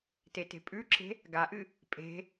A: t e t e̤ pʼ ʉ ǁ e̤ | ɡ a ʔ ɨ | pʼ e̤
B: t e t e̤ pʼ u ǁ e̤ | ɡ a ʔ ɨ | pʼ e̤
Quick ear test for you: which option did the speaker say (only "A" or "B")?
A